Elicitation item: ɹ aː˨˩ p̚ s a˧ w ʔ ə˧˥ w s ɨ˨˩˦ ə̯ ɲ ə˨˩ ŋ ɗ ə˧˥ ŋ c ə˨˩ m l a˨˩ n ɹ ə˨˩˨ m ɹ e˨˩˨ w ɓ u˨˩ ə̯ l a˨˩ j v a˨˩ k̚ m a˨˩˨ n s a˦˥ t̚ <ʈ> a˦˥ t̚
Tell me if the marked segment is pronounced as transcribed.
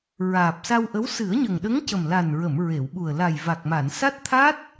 no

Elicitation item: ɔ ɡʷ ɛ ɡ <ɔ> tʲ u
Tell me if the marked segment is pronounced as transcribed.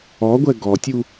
yes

